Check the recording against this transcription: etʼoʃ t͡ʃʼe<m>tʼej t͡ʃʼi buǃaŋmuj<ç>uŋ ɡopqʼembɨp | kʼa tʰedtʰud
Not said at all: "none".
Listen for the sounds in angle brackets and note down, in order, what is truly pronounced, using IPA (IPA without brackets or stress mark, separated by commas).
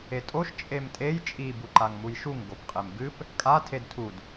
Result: m, ʃ